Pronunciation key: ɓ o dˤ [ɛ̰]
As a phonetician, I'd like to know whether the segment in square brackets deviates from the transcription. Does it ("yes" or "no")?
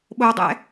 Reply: no